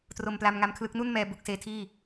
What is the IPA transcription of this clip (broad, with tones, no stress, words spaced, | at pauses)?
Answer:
tro˧mpla˧mŋa˦˥mkʰlɯ˦˥k̚ nu˥˩nmɛː˧ bu˥˩k̚seː˦˥tʰiː˥˩